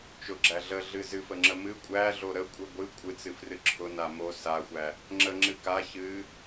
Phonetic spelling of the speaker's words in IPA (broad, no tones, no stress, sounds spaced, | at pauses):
t͡ʃ ʊ ɡ͡ǁ æ ɮ ə ɮ ɨ z ɨ f ə ŋ͡ǁ ə m ɨ kʷʼ æ ɮ o ɾ ə kʷʼ ɨ ɡʷ ɨ kʷʼ ɨ t͡s ɨ f r ɨ ǁʰ ʊ n a m o s a xʷ æ | ŋ͡ǁ ə ŋ͡ǁ ɨ k a ç ɨ